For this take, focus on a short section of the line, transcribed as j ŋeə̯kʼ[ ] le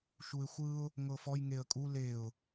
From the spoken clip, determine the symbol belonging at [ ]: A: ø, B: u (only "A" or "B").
B